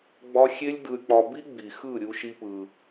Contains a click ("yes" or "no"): no